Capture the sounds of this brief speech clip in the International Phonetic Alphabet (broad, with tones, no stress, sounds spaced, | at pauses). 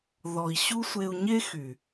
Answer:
ð ɔ˨ i̯ ɕ u˦ sʷ e˧ u̯ ɲ e˦ x y˨